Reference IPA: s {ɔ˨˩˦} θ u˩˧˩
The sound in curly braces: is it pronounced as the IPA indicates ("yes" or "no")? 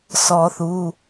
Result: yes